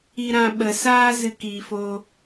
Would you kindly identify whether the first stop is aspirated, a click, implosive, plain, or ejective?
implosive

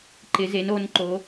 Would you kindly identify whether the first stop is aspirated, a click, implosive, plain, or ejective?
click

